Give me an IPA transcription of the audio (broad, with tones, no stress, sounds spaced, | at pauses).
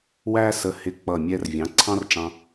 w æ˥ s ə˧ h ɪ˧˩ k͡p ʌ˧˩ mʲ ɛ˧ r vʲ ɑ̃˩˥ ǀʰ ɑ̃˥ r ʈ͡ʂ ɑ̃˧